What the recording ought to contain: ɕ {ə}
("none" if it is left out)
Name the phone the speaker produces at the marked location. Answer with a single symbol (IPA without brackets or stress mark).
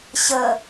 ə